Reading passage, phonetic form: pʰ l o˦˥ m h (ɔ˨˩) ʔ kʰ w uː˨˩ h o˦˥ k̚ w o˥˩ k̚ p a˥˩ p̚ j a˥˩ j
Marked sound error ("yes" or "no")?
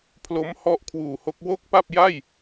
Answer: yes